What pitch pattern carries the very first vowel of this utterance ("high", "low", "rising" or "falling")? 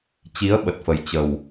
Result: rising